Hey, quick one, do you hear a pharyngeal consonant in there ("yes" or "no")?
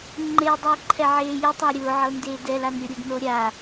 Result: yes